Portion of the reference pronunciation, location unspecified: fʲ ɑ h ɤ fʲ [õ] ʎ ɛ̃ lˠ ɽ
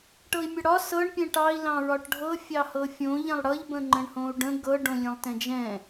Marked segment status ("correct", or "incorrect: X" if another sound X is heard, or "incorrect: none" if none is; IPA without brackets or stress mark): correct